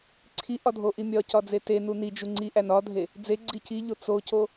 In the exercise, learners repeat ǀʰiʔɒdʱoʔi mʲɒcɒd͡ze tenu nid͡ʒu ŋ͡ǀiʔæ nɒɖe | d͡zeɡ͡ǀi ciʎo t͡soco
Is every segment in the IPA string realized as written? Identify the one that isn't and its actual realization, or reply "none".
ɖ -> dʱ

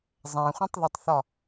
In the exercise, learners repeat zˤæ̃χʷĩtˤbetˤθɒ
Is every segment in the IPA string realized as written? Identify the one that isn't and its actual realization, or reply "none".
b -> ð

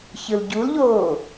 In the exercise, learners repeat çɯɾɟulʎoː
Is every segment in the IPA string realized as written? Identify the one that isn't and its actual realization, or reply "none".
ɾ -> l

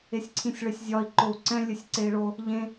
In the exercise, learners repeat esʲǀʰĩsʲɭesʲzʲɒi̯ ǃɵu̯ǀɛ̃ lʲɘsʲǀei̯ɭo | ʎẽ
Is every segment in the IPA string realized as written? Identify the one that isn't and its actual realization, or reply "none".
ɵ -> o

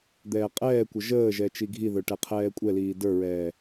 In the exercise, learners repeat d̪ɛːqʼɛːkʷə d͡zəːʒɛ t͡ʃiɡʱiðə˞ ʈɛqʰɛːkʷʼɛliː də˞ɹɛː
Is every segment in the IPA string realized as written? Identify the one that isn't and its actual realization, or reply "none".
d͡z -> ʒ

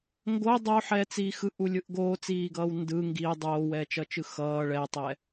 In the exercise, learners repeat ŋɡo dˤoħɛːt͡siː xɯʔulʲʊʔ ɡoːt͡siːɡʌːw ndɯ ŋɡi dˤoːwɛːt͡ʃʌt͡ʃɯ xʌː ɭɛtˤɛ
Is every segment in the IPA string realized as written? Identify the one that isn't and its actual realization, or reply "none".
ʊ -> ɯ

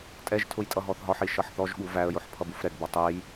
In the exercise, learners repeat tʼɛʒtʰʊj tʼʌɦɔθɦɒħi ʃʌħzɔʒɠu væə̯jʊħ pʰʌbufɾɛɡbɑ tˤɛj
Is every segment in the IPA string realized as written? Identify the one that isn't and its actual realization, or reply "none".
z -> θ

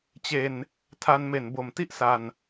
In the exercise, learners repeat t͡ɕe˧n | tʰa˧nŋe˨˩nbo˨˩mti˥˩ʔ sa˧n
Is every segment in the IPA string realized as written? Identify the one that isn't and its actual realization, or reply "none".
ŋ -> m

